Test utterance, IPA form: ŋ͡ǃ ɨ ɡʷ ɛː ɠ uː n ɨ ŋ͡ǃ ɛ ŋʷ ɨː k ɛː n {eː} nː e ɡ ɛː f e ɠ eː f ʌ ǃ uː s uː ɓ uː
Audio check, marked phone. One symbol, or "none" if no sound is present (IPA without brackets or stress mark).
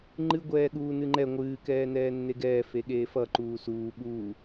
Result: ɛː